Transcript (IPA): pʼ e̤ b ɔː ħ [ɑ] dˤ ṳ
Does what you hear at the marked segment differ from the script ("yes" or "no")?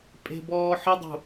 yes